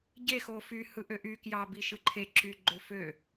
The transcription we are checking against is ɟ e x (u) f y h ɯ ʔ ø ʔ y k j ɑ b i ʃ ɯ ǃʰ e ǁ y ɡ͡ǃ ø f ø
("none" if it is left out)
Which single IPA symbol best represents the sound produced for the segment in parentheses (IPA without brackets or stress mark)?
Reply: o